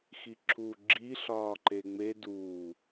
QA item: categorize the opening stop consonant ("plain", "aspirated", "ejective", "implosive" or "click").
click